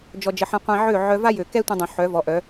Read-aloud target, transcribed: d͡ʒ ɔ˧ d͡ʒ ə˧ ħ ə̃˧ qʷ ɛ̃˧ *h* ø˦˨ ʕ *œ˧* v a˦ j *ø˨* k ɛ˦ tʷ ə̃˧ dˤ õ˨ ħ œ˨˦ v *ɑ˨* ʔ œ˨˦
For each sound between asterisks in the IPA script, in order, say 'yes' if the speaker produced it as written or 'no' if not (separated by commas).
no, yes, yes, no